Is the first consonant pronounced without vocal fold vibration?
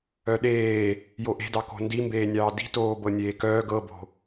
no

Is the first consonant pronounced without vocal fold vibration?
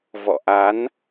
no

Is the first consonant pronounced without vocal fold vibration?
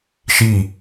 yes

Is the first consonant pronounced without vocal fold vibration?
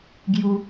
no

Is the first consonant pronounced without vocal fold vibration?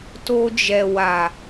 yes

